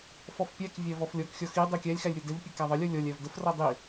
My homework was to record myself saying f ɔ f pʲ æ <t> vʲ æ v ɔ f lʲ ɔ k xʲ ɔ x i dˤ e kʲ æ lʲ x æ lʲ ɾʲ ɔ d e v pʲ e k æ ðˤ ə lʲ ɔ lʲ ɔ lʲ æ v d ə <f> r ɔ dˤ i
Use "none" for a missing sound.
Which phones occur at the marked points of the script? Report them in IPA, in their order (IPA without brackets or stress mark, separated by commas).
k, f